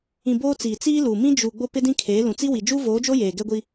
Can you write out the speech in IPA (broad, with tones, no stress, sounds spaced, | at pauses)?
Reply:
ĩ˨ b oː˦ t͡s iː˨ t͡s iː˦ l u˨ m ĩ˦ d͡ʒ u˨ ɡ͡b o˦ p ɪ˦ d ĩ˦ kʰ eː˨˦ l ũ˨ t͡s i˦ w i˨ d͡ʒ uː˦ v oː˨˦ d͡ʒ o˦ j eː˨ ɡ ɛ˦ ɡʷ i˦